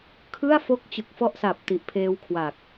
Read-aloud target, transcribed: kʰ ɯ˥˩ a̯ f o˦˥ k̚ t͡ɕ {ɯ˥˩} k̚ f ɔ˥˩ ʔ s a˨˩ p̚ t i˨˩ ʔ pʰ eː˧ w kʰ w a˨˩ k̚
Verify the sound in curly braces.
incorrect: ɯ˨˩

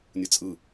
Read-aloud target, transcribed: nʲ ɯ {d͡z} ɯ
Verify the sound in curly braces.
incorrect: t͡sʼ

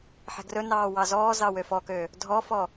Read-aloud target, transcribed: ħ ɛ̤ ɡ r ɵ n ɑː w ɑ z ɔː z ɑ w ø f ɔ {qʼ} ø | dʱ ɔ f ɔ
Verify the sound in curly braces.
incorrect: k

